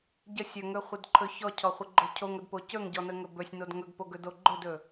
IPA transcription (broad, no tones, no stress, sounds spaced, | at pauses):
ɟ ə sʲ ɵ ŋ ɵ χʷ ə d ǃʰ ɵ ç ɔ cʰ ɔ χʷ ə ɡ͡ǃ o cʰ o ŋ ə d p o c ɵ ŋ ɟ ɔ n ə ŋ ɵ b ɵ sʲ n o d ŋ ɵ ɡ p o ɡ ɵ d o ɡ͡ǃ ɵ d ɵ